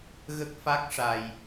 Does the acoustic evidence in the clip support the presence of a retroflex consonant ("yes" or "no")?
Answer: yes